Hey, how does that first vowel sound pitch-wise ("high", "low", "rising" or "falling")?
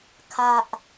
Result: low